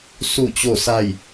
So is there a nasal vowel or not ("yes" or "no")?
no